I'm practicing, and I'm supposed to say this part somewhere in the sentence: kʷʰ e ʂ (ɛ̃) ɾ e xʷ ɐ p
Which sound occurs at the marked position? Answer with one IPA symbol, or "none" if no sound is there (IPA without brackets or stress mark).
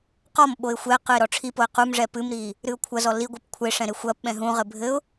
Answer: ɛ̃